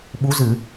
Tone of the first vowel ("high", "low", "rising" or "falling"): rising